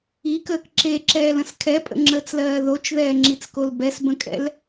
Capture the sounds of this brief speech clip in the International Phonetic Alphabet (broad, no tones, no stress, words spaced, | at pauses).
ikəːk ǁeǁɛːlə̃s kʰɛpʼə̰ŋ͡ǁəːt͡slɜː ðot͡ʃðɛːŋ͡ǁit͡skol bɛsbə̃kʼɛ̰l